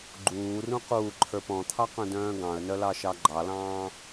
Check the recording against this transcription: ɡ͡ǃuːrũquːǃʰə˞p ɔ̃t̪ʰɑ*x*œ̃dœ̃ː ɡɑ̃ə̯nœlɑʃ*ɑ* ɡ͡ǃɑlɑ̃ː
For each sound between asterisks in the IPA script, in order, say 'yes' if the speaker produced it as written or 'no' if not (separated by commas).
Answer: no, yes